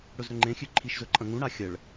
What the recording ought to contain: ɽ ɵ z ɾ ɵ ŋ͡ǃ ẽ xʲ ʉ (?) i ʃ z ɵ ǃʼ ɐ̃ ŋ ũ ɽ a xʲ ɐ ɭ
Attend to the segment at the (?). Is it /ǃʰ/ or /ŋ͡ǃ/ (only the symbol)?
ǃʰ